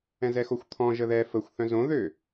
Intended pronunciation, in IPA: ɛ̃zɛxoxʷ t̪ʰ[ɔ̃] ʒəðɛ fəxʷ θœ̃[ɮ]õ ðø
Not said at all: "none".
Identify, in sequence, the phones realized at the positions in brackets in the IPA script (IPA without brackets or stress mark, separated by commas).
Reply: ɔ̃, z